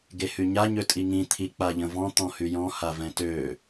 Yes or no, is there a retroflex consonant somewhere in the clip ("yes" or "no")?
no